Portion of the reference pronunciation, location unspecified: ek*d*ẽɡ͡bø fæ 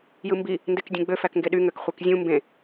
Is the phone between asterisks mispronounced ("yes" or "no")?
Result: yes